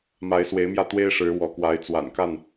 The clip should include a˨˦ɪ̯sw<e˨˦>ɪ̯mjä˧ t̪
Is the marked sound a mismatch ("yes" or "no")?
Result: no